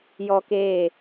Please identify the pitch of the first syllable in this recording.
high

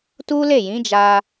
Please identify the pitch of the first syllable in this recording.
high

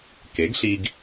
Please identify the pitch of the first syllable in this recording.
rising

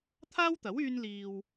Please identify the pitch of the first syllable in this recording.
high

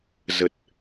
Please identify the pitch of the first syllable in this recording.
low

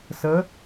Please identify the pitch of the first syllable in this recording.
rising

